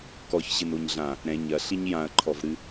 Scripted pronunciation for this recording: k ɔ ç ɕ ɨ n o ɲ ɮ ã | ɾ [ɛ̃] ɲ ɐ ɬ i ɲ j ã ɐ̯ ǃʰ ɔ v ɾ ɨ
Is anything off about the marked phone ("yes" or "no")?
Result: no